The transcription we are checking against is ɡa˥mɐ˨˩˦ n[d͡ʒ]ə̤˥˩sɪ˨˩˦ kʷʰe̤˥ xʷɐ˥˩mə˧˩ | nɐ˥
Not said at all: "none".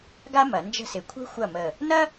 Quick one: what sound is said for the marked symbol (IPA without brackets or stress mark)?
d͡ʒ